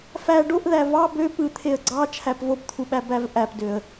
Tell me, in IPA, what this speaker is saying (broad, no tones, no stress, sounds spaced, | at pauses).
f æ ɖ o ʔ ð æ v ɑ b ø p ɯ t̪ʰ e ə̯ ɡ͡ǀ ɑ t͡ʃʰ æ p v o p t̪ʰ u ɓ æ b æ v ʔ æ p d ø ə̯